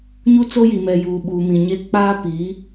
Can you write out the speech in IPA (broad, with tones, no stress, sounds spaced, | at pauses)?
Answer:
ɲ u˦ t͡s o˦ j i˨ m ɛ˨ j uː˨ ɓ uː˨ m ĩ˨ ɲ e˦ k͡p aː˦ p i˨˦